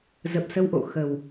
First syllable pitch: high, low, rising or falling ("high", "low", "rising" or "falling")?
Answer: low